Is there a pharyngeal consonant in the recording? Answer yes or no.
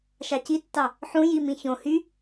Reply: yes